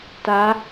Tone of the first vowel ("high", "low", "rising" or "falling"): rising